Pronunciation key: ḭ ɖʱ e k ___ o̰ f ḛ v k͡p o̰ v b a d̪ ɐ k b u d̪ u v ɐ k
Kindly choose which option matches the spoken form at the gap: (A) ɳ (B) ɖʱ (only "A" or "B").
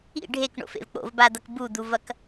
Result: A